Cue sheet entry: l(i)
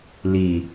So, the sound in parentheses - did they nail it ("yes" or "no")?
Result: yes